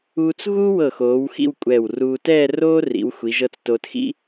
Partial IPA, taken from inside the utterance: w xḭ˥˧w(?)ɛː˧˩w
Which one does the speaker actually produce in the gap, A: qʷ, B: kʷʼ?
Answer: B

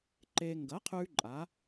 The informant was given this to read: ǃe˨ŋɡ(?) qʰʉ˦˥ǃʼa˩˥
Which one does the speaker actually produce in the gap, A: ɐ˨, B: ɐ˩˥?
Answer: B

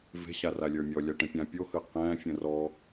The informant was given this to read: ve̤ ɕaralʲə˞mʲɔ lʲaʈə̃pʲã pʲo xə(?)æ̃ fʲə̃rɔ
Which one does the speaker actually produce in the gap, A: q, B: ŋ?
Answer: A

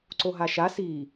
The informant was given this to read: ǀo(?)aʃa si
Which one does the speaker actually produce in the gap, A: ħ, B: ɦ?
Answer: B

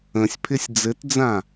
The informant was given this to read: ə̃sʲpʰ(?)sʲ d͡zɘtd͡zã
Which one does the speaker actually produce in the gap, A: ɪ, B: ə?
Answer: A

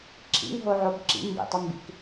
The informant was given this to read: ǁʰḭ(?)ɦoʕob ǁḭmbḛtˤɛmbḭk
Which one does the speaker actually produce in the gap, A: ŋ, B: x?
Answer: A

